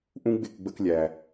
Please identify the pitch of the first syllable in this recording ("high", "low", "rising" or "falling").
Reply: high